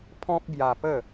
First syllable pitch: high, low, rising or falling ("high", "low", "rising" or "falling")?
high